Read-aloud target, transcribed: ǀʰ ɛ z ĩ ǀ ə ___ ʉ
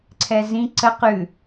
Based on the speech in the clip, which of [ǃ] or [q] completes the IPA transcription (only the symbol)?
q